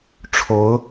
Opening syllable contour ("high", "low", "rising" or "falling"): rising